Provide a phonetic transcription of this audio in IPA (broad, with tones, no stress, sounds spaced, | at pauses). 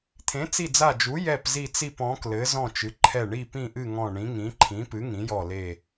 t̪ʰ ẽ˨˥ t͡s i˦˨ d͡z a˦˨ d͡ʒ u˨˥ j ɛ˦˨ p z i˦˨ t͡s i˦˨ p ɔ̃˨˥ k l ɘ˨˥ z ɔ̃˦˨ t͡ʃ ɨ˨˥ ǃʰ ɛ˦˨ ɳ i˦˨ p ĩ˦˨ ʔ ɨ˦˨ ŋ ɔ̃˦˨ ɳ ĩ˨˥ ŋ ĩ˨˥ ǃʰ ĩ˨˥ p ɨ˨˥ ŋ ĩ˨˥ j ɔ˦˨ l e˦˨